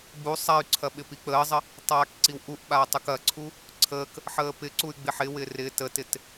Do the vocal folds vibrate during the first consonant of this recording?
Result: yes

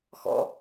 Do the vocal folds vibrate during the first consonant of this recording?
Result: no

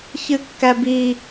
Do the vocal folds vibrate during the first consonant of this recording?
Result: no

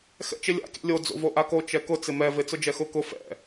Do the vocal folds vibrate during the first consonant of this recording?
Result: no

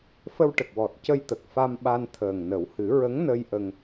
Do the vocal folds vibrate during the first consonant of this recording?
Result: no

